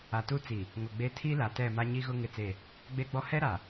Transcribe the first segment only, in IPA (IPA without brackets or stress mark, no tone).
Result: a